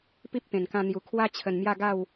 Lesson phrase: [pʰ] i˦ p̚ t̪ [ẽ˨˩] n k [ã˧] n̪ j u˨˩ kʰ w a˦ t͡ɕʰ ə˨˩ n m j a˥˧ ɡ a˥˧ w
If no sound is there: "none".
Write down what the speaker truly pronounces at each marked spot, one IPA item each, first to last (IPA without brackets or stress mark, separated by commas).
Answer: p, ẽ˨˩, ã˧